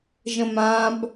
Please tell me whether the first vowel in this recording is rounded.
no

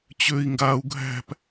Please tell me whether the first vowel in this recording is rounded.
yes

